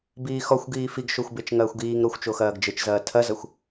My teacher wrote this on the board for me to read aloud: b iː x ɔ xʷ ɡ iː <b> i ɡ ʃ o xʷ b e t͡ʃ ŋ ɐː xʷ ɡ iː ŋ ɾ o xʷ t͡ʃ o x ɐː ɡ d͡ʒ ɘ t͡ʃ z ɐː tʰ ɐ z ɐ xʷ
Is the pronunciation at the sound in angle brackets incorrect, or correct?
incorrect